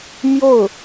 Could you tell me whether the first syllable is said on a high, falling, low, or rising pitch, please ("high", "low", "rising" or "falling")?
falling